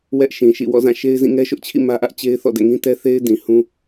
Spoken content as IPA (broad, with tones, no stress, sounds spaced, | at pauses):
w ɛ˦ ʔ ʃ ĩ˨ ʃ ḭ˦˨ w ɔ̰˦˨ z ã˦˨ ʃ e˦ ɪ̯ z ĩ˦˨ ŋ ɛ˦ ʃ ʊ˦ ʔ t͡ɕʰ ḭ˦˨ m ä˦ ʔ ä˦ ʔ t͡ɕ e˦ ɪ̯ θ ɔ̰˦˨ d ɛ̰˦˨ ŋ ĩ˦ t ɛ˦ θ e˦ ɪ̯ d ĩ˨ h ũ˦